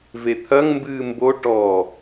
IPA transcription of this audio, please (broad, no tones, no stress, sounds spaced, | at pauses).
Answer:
v e t̪ʰ ɐ ŋ m b ɨː m b o ʈ ɔ